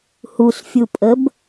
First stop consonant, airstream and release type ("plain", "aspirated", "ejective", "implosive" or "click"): ejective